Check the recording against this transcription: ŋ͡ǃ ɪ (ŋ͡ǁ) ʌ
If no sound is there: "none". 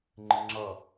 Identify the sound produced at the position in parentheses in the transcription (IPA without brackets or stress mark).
ŋ͡ǁ